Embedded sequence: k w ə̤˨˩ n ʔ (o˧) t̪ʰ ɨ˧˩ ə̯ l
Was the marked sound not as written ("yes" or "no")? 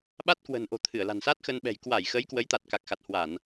yes